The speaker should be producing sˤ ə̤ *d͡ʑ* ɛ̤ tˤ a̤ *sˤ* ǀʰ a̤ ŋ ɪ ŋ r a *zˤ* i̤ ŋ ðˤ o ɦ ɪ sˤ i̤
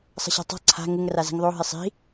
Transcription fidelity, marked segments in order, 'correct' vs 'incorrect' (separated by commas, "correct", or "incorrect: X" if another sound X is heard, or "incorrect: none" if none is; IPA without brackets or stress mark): incorrect: ɕ, incorrect: none, incorrect: z